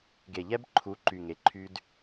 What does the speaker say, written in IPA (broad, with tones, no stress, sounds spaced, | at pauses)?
ɡ e˨ ʎ ɛ˦ b ǃʰ u˨˦ ǃ y˨ ŋ e˨ ǃʰ y˦ d